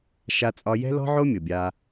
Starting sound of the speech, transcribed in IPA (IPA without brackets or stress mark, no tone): ʃ